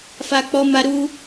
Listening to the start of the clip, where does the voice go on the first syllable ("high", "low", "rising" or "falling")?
low